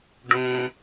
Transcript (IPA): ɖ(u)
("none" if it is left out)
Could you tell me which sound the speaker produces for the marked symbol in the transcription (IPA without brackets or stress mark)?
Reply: ũ